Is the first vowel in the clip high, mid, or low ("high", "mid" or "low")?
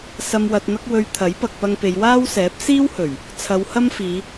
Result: low